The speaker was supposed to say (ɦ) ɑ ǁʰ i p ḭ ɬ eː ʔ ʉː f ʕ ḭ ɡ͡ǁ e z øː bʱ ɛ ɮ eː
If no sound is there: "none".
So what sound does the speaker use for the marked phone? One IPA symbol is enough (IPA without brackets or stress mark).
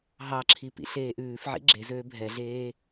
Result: ɦ